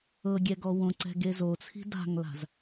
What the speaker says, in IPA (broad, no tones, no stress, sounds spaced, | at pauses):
ɤ ɡʲ ɛ ɡ ɔ w õ ǀ ɛ̤ ɡ e z o t͡sʰ i̤ d a̤ ŋ l a̤ z